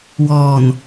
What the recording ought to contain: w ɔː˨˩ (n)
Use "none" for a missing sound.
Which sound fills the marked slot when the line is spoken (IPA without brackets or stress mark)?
n